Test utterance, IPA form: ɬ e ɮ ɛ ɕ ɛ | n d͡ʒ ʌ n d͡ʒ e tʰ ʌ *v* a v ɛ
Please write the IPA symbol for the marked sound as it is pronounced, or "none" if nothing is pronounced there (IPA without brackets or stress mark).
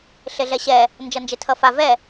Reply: f